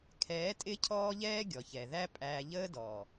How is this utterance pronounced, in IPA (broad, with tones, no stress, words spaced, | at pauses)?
kʰɛː˨˦tʼɪ˦ cʰɔː˦ʎɛː˦ɡʲɔ˨ çɛ˨ðæ˦pʼæː˧ ʎəː˦dɔː˨